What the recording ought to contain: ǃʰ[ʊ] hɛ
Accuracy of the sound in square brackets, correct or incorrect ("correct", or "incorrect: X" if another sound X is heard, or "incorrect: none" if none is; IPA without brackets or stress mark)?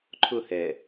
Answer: correct